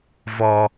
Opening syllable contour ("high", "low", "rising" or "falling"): low